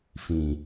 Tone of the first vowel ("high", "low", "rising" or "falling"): low